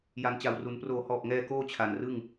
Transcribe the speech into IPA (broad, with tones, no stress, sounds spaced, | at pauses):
j a˩˦ n t͡ɕ a˨˩ w r u˩˦ n p r oː˩˦ h ɔː˨˩ p̚ ŋ ɛː˧ k oː˥˩ t͡ɕʰ a˨˩ n r ɯ˥˩ ŋ